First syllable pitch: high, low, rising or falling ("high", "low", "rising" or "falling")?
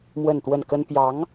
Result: falling